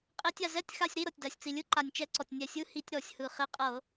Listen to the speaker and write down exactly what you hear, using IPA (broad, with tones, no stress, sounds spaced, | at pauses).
qʼ e˧˩˧ tʲ a˩ z ɛ˧˥˧ tʲ x a˧˥˧ sʲ ɾ i˧˥˧ ɾ ɤ˩ tʲ d a˩ sʲ t͡s i˩ lʲ ɯ˧˥˧ ǃ a˩ nʲ t͡ʃ ɛ˧˩˧ ǀ ɔ˩ tʲ nʲ ɛ˧˩˧ sʲ ɯ˧˥˧ h i˧˩˧ tʲ ɾ ɔ˧˩˧ sʲ h ɯ˩ χ e˧˥˧ qʼ ɤ˧˩˧